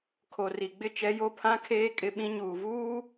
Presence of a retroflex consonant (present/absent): absent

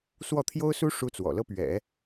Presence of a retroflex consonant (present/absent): present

